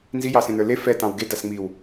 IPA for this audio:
n z i j ɑ s ẽ n ə˞ l e f ɛ t ɑ̃ w ɡ e d a s ŋ͡m i w

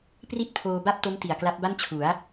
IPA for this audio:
p r i˥˩ t̚ pʰ oː˧ b a˥˩ p̚ t o˦˥ m t i˨˩ a̯ k l a˦˥ p̚ b a˥˩ n t͡ɕʰ u˩˦ a̯

